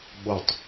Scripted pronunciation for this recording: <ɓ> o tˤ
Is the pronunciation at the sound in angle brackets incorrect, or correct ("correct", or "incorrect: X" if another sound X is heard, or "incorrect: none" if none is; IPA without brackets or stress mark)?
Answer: correct